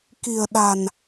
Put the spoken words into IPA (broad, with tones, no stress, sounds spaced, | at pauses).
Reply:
k i̤˨˩ ə̯ ɗ a̤˨˩ n